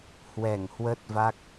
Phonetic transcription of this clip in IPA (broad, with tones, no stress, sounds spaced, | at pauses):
h w ɛ˧˩ ŋ h w ə˦˥ t̚ v a˦˥ k̚